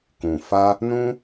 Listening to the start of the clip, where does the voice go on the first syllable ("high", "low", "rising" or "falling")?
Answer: low